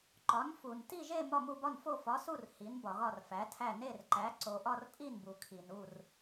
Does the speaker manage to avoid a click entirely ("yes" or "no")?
no